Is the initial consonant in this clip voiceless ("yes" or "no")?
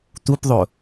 yes